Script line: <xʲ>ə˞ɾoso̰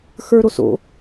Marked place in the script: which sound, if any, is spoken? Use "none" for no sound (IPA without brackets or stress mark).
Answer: x